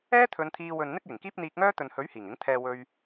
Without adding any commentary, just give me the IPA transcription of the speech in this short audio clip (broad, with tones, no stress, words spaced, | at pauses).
ɛː˥t̪ʰɵ˨˧nt̪ʰiː˧wɵ˨n n̪ɪ˥k̚jɪ˨˩ŋkiː˥p̚ n̪iː˧k̚ŋœː˥ t̪ɵ˨nhɵ˨˥ɥ hiː˨˩ŋɪ˨˥ŋt̪ʰɛː˧ wɵ˧ɥ